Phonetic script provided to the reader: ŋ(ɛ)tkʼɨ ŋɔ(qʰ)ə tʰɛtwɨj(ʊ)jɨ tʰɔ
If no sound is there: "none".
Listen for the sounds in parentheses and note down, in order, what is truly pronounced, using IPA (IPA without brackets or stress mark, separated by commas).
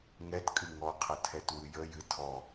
ɛ, qʰ, ə